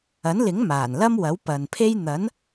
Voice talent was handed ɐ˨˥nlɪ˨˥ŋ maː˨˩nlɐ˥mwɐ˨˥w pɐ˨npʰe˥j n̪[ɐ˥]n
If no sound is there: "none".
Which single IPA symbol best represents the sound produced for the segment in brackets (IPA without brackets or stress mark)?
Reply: ɐ˨˥